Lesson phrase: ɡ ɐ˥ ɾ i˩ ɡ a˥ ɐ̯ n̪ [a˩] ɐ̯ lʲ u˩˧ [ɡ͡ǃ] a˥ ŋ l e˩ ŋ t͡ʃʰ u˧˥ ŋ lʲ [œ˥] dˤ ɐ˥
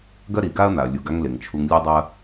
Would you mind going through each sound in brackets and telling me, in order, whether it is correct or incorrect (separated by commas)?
correct, incorrect, correct